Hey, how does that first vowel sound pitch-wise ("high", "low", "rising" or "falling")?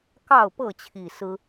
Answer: falling